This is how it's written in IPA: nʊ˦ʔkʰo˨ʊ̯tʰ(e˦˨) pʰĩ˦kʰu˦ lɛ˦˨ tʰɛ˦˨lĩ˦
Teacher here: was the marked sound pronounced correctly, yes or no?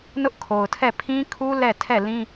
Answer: no